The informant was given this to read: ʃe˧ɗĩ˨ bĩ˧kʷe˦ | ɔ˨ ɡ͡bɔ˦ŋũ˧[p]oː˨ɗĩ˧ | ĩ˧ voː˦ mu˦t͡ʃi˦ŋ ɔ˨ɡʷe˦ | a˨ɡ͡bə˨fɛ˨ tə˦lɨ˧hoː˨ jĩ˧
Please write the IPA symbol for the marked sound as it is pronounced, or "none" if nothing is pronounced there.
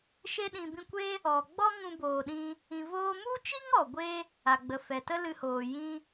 b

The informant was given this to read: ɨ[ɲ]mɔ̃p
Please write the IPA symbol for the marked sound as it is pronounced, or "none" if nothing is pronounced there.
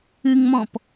ŋ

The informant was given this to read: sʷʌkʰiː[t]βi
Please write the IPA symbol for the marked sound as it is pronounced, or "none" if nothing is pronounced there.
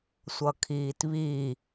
t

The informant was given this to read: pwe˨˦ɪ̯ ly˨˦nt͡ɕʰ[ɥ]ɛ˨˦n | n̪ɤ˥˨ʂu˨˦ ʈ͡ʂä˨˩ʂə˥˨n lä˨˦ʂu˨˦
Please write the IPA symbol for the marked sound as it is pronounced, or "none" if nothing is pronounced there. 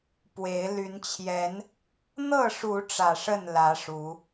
j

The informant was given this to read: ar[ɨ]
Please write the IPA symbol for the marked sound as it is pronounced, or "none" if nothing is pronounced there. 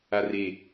e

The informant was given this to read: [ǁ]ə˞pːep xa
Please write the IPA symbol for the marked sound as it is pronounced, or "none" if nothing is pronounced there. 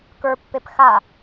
k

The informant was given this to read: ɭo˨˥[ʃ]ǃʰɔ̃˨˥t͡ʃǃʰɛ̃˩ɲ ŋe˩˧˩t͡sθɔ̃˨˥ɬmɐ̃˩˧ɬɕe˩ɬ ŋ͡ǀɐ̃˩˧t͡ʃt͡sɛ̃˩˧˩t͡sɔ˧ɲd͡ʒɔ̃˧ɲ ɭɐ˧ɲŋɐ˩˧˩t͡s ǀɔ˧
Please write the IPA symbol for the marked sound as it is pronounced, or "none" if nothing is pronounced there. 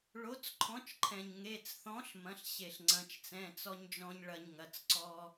t͡s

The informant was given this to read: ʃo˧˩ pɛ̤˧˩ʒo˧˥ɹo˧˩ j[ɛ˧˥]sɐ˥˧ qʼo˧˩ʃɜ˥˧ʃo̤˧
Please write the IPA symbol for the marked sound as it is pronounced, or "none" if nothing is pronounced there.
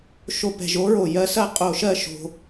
ɜ˧˥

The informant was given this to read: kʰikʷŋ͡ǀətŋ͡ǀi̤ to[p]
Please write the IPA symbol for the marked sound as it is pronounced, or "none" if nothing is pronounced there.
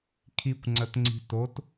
t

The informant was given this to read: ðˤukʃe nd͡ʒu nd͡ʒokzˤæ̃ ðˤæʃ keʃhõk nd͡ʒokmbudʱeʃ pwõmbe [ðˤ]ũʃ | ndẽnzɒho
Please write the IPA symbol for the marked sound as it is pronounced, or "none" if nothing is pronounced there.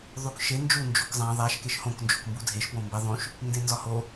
ðˤ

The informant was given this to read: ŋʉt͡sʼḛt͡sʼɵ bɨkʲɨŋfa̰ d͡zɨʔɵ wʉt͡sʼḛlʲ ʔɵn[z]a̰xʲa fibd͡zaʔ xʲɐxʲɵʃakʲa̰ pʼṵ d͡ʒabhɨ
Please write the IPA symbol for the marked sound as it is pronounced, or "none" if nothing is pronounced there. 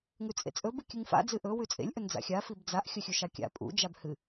d͡z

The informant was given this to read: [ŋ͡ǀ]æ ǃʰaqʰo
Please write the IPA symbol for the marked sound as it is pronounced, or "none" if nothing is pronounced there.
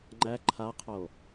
ŋ͡ǃ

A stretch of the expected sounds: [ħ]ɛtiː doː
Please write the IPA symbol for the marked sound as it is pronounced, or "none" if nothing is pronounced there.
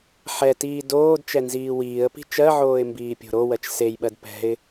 ħ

